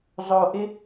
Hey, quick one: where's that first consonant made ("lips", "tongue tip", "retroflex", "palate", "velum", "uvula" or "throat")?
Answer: tongue tip